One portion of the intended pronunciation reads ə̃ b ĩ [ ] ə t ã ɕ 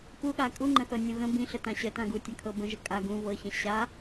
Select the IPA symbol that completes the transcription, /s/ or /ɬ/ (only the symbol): ɬ